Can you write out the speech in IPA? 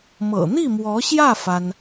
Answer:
m ɤ̰˨˩ n̪ i˥˩ m w ɔ˧˥ ɕ j ä˥˩ f a˥ n

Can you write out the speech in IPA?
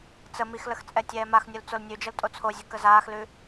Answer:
t͡s ə m i x l ə x t͡sʼ ɛ tʲ ɛː m a x nʲ u l t͡s o l nʲ ʉ d͡ʒ ə l tʼ o t͡sʰ o zʲ ʉ k ə z aː x l ʉ

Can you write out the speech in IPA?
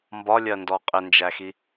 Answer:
m b ɒ lʲ ɜ n d ɔ qʼ ɪ n d͡ʒ æ x i

